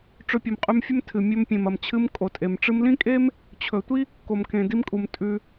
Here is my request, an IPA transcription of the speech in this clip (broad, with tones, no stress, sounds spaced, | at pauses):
ʈ͡ʂ ɵ˧ pʲ ɨ˨ m qʼ ʉ˧ m fʲ ɵ˦ m tʰ ɨ˨ mʲ ɵ˧ m pʲ ẽ˨ m ɐ˨ m t͡ɕʰ ɨ˧ m kʼ o˨ tʼ e˨ m ʈ͡ʂ ɨ˧ m l ĩ˦ kʼ e˦ m | t͡ɕʰ ɵ˨ tʷ i˦ | k o˨ m k ẽ˨ d i˧ m kʼ u˨ m tʼ ʉ˧